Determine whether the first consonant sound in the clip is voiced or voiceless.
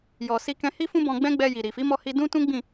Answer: voiced